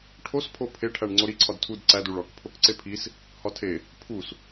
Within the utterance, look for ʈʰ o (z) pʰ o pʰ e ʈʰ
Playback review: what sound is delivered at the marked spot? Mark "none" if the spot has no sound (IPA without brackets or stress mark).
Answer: s